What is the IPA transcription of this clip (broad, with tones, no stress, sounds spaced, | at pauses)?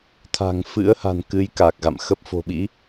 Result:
t̪ʰ a̤˨˩ ŋ f ɨ̰˧˥ ə̯ h a̤˨˩ n k ɨ˨˦ j k a˨˩ k̚ ɣ a̰˧˨ m x ə˦˥ p̚ f o̤˨˩ ɓ ḭ˧˥